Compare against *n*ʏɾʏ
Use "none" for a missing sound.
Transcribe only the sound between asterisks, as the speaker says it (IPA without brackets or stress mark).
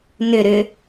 n